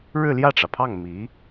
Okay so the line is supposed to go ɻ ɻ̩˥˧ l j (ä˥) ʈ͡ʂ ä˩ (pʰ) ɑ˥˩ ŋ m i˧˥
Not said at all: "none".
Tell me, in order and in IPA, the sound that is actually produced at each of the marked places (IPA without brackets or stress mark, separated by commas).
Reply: ä˥˩, pʰ